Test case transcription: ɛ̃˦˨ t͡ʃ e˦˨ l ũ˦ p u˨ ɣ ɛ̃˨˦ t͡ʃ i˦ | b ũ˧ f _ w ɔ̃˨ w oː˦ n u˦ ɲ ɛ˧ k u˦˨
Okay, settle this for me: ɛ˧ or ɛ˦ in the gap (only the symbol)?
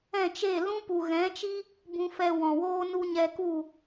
ɛ˧